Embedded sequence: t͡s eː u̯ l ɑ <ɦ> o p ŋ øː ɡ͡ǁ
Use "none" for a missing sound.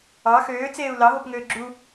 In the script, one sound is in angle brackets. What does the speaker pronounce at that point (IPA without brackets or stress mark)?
ɦ